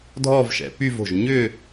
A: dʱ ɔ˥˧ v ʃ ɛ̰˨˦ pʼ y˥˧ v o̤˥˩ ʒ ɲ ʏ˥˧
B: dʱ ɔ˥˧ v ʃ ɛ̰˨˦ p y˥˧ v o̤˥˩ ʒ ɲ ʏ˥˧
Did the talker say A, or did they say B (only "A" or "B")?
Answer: B